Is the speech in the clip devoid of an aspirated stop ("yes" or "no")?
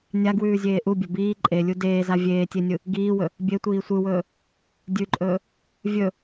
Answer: yes